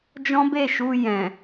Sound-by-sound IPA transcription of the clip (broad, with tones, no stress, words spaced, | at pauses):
d͡ʒɔ̃˦be˦˨ʃu˧ jɛ̃˨